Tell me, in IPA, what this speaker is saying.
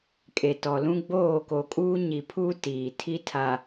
kʼ e˨ t ɔ˨ l ũ˦ ɡ͡b oː˦˨ k o˨ kʼ uː˦ ɲ i˨ pʰ uː˦ t iː˨ tʰ i˦ tʰ a˨

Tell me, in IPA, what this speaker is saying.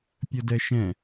pʲ ə d ɛ ʃ ɛ̃

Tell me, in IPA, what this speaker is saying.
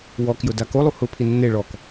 w ɔ k j ʊ d a k o lˠ u h ʊ pʰ i nː e ɭ ɔ k

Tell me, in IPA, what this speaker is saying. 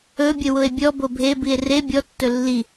ɵ bʲ ə w ʊ e̯ bʲ ɔ b o bʱ e b i e̯ r e bʲ ɔ tː ɵ lː i

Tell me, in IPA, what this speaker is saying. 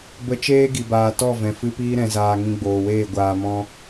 b ə˧ t͡ʃ eː˦ ɡ i˨ b aː˨ t ɔ˦˨ v ɛ̃˨ f ɨ˧ p iː˧ ɾ ɛ̃˨ z aː˨ ŋ ĩ˧ ɡ͡b oː˨ w eː˦˨ ɡʷ aː˧ m ɔ̃˦

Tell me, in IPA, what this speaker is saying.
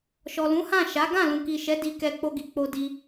ʃ ɔ˨ l ũ˨˦ h ã˦˨ ʃ a˨˦ ɡ ã˦˨ l ũ˨ k i˨ ʃ ɛ˨˦ d i˧ k ɛ˧ k͡p o˧ ɡ i˨ k͡p o˧ d i˦

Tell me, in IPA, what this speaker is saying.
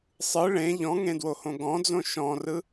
sˤ ɯ ɭ ẽ ʎ ɔ̃ ŋ ẽ d w o h õ ɡ ɔ̃ d͡z õ ʃ ɔ̃ r ɯ

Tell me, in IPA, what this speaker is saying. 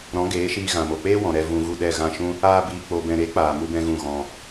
ɾ ɔ̃˨˦ ɡ eː˨˦ ʃ iː˧ ɣ ã˨ m o˨ k͡p eː˦ w ɔ̃˨ ɾ ɛ˧ v ũ˧ ɣ u˦˨ ɗ ɛ˦˨ ɣ ã˦˨ ʃ ũ˦ | aː˧ b iː˨ k͡p o˨ b ɛ̃˨ ɾ e˨˦ k͡p aː˨ m u˦ b ɛ̃˦ ɣ ũ˦˨ ɣ ɔ̃˧

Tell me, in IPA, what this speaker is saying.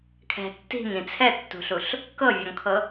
kʰ ɛ̤ tː i̤ ŋ ĩ t͡sʰ ɛ tː ṳ ɬ u ɬ | k ɤ vʲ ɔ ŋ kʰ ɤ

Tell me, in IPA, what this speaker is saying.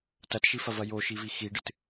t ɐ t ʃ i f ɐ v ɐ j o ʃ i v i x i ɖ ɨ t

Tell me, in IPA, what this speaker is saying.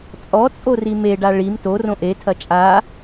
t͡sʼ ɔ t͡sʼ o r i m e ɖ a ɭ i m t o r õ ʔ e tʰ ɐ t͡ʃʼ a

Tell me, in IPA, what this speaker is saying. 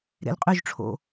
ɾ ḛ l qʼ y ʒ ʈ͡ʂʰ o̰

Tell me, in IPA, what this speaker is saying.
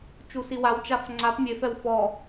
t͡ʃ u s i w a w t͡ʃ a f ŋ͡ǀ a p mʲ e f ɛ w f ɔ

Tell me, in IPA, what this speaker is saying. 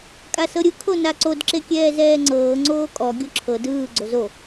kʼ a s ɤ ɾʲ ɯ kʰ o n a ǀ o d ǁ e kʲ ɛː z ɛː ŋ͡ǀ ɤː ŋ͡ǀ oː kʼ ɔ ɡʲ o ǁʰ ɤ d ɯː ɡ͡ǀ o z o

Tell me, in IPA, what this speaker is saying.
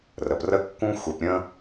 r ə˨ p r ə˦ kː ũ˦ xʷ e˨ p ɾʲ ə̃˦

